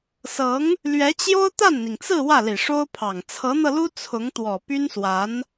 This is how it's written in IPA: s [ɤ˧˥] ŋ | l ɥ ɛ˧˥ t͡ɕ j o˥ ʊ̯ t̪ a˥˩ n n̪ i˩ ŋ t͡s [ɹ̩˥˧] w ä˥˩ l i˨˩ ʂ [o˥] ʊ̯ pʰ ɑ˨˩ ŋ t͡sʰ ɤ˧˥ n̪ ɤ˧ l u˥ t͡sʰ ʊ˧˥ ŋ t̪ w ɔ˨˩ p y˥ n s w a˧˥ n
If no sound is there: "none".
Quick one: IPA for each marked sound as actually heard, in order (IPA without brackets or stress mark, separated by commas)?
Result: ɤ˧˥, ɹ̩˥˧, o˥